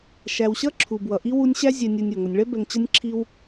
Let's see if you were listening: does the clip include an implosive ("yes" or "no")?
no